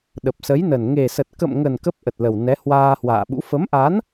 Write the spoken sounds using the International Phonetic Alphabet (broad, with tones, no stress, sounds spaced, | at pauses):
ɗ ə˨˩ p̚ s ə˨˦ j n ə˨˩ n ŋ e˨˩ s ə˨˩ t̚ k ə̰˧˨ m ŋ ə˨˩ n k ə˦˥ p̚ ʔ ə˨˩ t̚ l ə˨˩ w n ɛ˨˦ h w aː˧ h w a̰ː˧˨ ɓ ṵ˧˥ f ə˨˦ m ʔ a˨˦ n